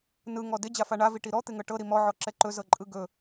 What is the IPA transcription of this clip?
n ɯ ŋ ɔ d ɪ d͡ʑ a f a ɳ a v i ʈ i ɾ ɔ t̪ ɪ ŋ ɤ ʈ ɤ ɾ i m ɔ ʕ ɔ ǁ ɛ ǃ ɵ z ɤ ǃʼ ɯ ɡ ɵ

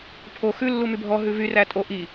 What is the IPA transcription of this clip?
pʰ o x ʉ lː u m y bʱ ɔ ɦ ʉ v y r æ tʼ o ʔ i

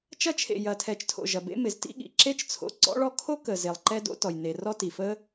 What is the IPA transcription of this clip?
t͡ʃ ɐ˧ t͡ʃʰ ḛ˩ j ɐ˩ tʰ ɛ˩ t͡ʃ tʰ o̰˩ ʒ ɐ˩ b ḛ˥ m ɪ˩ z t ḭ˥ ɠ ḭ˩ ǁ e˥ t͡ʃ t͡sʰ o̰˧ ǀ ɔ̰˥ ɭ ɔ˥ kʰ o˥ k ə˩ z e˩ lˠ ǃ ɛ˥ d o̰˥ t ɔ˩ j n e˩ r ɔ˥ t i˩ f ə˥

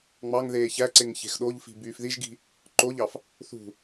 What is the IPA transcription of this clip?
ŋ͡m ɑ ŋ ð eː ç æ ǀ e ŋ ç e̤ x ɗ o ʎ f i̤ b yː f ð i ʒ ɡ i̤ | ǃ o ʎ ɑ f | θ ṳ

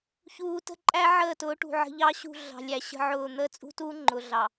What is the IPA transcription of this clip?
ç uː˨ t ə̤˦˨ ǃʼ æ˦ ʕ əː˦˨ t ʊː˨˦ ʈ ṳ˨ ʕ ə̤˨ ʎ ɑ˦ ɕ ṳ˦˨ ɮ ɑ̤˨ lʲ æ˨ ɕ ə̤˦ ʕ ʊː˦˨ n̪ əː˦ t͡sʼ ṳ˦ t uː˦ ŋ͡ǃ ʊ˨ ɮ ɑ˨

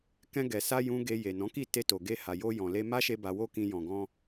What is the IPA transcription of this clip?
k ɛ̃˧ ɡ ɛ˨ s a˧ j ũ˦ ɡ e˧ j e˨ n ɔ̃˨˦ k i˦˨ t e˧ t o˨ ɡ e˧ h a˨ j o˧ j ɔ̃˨ l e˧ m a˦ ʃ e˧ b a˧ w o˦ k ĩ˧ j ɔ̃˨ ɡ ɔ̃˧

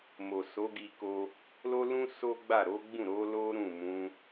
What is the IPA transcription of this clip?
m o˨ s o˨˦ ɡ i˧ k o˧ | l o˦ l ũ˦ s o˦ ɡ͡b a˦˨ ɾ o˨˦ ɡ͡b ũ˦˨ ɾ o˨˦ l o˦ ɾ ũ˦˨ m ũ˨˦

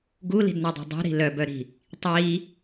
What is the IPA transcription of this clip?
ɡ u l i̤ d n ɒ dˤ i̤ dˤ ṳ ɾ i̤ l œ b œ ɾ i̤ | tˤ i

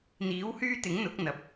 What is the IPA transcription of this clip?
n̪ iː˨˥ w h yː˥ t̪ ɪ˨˥ ŋ n̪ ʊ˨˥ k̚ n̪ ɐ˨ p̚

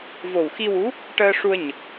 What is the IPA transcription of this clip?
v o˨˩ w x i˧ w u˧˥ | ʈ əː˧ ʂ u˧ ə̯ ɲ ə˨˩ k̚

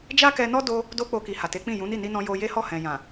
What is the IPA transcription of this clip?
d͡ʒ a˦ k ɛ˧ n ɔ˦ d o˧ | d o˦ k͡p o˧ k i˨ h a˨ t e˨˦ k͡p ĩ˦˨ j ũ˨˦ n i˦˨ n i˧ n ɔ̃˧ j o˧ j e˦ h ɔ˦˨ h ɛ̃˨ j ã˨

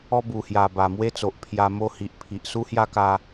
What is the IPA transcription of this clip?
ɔ˦ b u˨˩ h j a˨˩ b a˨˩ m w e˦ t͡s o˨ ʔ pʰ j a˧ m o˦ h i˨ ʔ pʰ i˨ ʔ s u˦ h j a˦ k a˧

